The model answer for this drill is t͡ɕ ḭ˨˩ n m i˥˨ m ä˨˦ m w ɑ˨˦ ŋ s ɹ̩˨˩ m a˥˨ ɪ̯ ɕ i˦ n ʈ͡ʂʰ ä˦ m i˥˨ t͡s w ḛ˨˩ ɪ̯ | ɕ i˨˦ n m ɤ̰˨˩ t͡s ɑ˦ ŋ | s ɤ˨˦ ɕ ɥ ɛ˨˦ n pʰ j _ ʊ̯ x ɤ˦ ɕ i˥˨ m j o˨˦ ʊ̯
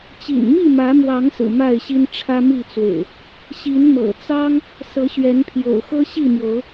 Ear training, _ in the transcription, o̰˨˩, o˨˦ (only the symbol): o̰˨˩